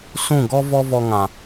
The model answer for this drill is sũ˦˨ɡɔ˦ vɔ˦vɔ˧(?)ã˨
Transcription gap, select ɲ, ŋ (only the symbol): ŋ